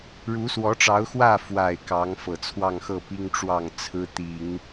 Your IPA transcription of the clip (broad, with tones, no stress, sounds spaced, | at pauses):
ɻ u˧˥ s w ɔ˧˥ ʈ͡ʂ ɑ˧˥ ʊ̯ x w ä˥˩ f w a˨˩ ɪ̯ k ɑ˧˥ ŋ f ɤ˨˩ t͡sʰ w ɑ˥˧ ŋ x ɤ˥˩ p i˥ ŋ ʈ͡ʂ w ɑ˥˩ ŋ t͡sʰ ɹ̩˥ t̪ i˨˩˦ ŋ